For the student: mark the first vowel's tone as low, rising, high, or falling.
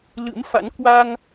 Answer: rising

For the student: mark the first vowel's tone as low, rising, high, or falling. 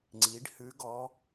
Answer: rising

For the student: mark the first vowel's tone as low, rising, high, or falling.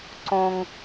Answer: high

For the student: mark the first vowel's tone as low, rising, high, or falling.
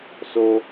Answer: low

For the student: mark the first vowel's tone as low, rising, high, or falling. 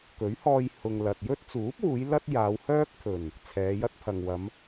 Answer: rising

